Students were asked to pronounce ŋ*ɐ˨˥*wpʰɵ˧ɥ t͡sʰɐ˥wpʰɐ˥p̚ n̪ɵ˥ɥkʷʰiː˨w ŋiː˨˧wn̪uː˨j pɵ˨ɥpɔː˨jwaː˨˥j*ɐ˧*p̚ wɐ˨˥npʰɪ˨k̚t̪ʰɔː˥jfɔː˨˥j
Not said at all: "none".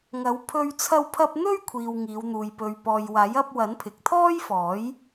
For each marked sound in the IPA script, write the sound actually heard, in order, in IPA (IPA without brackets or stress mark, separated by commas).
ɐ˨˥, ɐ˧